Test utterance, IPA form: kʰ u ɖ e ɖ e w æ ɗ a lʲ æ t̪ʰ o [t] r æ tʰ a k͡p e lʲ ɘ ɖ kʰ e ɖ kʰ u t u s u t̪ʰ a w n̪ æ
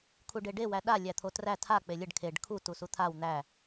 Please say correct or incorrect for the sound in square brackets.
correct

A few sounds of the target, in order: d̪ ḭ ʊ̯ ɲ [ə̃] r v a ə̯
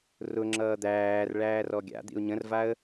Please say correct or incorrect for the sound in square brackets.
correct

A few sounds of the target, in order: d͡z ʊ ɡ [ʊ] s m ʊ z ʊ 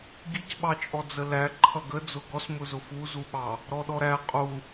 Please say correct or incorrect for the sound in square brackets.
incorrect: ɔ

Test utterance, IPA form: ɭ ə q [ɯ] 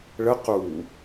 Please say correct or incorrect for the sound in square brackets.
incorrect: u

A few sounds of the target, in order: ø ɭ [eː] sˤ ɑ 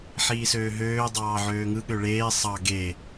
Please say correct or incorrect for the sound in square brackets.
correct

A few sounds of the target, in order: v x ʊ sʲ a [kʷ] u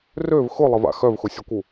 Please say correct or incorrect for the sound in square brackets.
correct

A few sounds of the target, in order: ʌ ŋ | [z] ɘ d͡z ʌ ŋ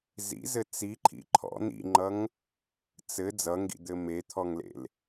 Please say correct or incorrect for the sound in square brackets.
incorrect: t͡s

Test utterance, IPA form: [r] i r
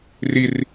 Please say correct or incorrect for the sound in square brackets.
correct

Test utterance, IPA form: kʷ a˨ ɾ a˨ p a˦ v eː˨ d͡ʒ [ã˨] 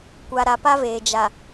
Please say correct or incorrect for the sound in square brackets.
incorrect: a˨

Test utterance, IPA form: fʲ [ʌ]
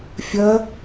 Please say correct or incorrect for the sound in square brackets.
correct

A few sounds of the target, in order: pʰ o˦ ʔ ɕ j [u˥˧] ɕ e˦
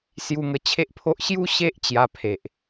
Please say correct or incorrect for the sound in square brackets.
incorrect: u˦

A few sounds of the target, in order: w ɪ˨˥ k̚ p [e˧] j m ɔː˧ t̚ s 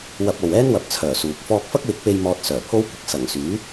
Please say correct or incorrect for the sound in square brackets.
correct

